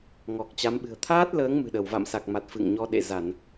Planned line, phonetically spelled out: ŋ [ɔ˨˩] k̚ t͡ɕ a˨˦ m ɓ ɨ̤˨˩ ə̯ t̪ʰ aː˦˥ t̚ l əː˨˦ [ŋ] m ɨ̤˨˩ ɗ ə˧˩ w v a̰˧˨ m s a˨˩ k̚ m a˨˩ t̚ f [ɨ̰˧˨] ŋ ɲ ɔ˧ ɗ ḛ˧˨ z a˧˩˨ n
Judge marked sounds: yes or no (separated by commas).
yes, yes, yes